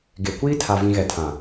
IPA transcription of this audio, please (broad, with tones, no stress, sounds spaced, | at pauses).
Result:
ɡ e˨ kʷ iː˦ tʰ a˨ v ĩ˨ ɣ ɛ˨ tʰ ã˨